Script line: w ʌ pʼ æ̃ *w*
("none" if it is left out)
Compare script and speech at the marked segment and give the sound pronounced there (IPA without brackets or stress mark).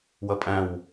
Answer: w